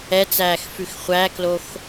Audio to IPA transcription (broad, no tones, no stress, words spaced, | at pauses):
ɛt͡sæːx fʉxχʷæklox